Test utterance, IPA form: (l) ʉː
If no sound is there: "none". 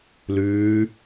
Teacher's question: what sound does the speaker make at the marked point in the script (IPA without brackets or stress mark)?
l